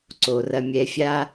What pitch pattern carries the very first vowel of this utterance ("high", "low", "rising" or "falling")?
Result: low